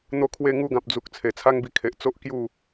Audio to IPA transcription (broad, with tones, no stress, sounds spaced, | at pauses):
n̪ o˥˧ kʰ w e˥˧ ŋ u˧ ɡ ã˨ p̚ d͡z u˨ k̚ t͡sʰ e˨˩ t͡sʰ a˦ ŋ b i˧ kʰ e˨ ʔ t͡s o˦ ʔ k j u˥˧